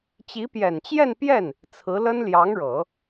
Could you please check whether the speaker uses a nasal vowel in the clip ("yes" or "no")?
no